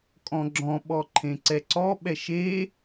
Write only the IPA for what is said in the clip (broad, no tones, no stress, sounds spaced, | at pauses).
kʼ ɔ̃ ɡ͡ǁ ɔ̃ ɓ ɔ ǃʰ ẽ ǀ ɛ ǀ ɔ ɓ ɛ ʃ e